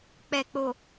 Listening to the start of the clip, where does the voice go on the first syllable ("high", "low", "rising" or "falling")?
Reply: low